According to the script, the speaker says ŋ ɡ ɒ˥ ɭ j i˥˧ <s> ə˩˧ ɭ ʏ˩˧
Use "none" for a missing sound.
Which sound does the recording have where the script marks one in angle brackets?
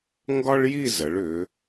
z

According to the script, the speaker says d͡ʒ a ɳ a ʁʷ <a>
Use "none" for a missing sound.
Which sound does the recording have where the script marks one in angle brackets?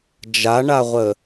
ə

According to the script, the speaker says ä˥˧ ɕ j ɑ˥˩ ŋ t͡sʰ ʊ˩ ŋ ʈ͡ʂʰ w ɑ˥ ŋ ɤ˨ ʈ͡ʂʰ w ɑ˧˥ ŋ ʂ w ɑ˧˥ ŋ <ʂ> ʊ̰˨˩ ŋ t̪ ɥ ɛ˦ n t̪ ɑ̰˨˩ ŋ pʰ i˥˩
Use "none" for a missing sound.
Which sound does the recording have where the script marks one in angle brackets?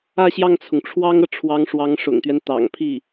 ʂ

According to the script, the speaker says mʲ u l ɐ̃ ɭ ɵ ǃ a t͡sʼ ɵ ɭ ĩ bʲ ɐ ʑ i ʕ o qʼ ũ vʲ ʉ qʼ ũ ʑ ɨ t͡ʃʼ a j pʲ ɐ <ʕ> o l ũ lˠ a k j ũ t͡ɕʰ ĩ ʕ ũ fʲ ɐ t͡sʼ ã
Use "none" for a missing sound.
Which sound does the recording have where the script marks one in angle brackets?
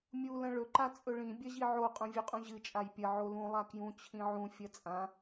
ʕ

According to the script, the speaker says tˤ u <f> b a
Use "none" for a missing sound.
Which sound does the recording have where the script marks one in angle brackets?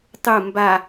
m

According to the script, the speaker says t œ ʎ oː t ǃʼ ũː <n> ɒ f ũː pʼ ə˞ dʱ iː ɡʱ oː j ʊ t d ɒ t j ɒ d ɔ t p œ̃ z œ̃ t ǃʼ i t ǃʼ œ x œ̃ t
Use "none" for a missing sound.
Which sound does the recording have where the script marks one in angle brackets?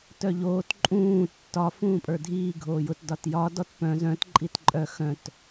tː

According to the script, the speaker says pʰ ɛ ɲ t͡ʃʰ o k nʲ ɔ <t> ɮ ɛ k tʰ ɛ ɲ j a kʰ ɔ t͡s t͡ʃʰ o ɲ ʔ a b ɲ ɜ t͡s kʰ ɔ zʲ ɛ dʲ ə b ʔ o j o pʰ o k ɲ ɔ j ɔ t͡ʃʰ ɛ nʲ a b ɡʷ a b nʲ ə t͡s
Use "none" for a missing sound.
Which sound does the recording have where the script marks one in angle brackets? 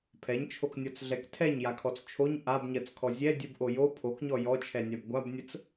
t͡s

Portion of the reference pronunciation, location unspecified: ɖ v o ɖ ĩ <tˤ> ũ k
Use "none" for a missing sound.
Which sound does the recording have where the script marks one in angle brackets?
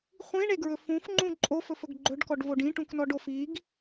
ʈ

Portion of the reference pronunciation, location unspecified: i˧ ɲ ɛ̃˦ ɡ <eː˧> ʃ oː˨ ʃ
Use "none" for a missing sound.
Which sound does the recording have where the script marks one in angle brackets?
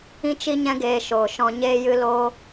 eː˧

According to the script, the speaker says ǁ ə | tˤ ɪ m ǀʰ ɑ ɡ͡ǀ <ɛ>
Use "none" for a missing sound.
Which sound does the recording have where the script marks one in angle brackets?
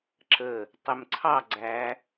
æ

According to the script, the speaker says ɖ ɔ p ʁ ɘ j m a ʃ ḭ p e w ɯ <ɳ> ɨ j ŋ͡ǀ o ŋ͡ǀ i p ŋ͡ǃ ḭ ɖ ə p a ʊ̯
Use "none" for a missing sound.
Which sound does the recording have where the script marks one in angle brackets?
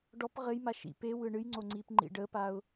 ɳ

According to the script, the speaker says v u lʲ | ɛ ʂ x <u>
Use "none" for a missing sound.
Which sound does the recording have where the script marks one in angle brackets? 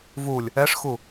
u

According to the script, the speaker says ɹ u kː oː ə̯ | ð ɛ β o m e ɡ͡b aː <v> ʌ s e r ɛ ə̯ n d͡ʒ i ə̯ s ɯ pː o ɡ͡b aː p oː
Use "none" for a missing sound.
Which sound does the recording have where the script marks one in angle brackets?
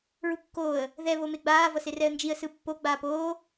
v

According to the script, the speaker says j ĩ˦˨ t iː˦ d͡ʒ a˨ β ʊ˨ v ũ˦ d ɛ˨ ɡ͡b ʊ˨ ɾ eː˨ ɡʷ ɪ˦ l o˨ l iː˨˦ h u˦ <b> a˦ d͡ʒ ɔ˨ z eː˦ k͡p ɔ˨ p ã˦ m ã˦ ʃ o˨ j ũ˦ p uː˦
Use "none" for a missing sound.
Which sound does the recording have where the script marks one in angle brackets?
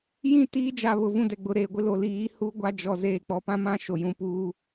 ɡʷ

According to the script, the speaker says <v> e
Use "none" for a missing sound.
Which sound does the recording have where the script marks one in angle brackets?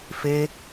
f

